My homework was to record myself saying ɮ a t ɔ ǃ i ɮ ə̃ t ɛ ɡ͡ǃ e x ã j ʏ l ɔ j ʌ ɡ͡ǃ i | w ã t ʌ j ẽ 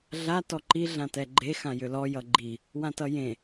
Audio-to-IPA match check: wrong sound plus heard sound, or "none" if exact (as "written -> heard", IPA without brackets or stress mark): ə̃ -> ã